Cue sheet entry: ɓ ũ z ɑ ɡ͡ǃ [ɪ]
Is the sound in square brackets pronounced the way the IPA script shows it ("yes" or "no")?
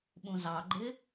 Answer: yes